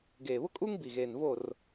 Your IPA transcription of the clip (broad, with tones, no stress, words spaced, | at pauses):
ɡeː˨βʊ˦kʼuː˦ŋ bi˨ɣeː˨nvo˦˨r